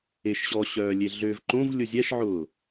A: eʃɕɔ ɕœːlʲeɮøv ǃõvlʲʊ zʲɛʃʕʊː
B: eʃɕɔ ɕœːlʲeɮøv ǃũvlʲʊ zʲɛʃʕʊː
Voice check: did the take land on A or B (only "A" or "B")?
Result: A